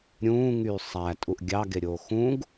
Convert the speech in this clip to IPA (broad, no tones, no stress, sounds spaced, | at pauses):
ɾʲ ũː ŋ yː sˤ æ tʼ u ʔ ɡʲ ɑ ɡ e ɾʲ oː x ũ ɡ